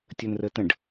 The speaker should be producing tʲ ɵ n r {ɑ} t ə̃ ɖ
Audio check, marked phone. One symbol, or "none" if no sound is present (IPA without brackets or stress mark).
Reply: ə